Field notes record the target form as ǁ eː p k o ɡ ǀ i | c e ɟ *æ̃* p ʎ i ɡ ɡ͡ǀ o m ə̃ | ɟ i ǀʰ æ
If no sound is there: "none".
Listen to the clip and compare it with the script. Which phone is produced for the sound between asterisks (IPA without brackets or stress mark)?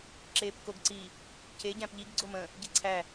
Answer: æ̃